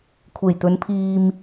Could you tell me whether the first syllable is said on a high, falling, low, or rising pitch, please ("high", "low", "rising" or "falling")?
low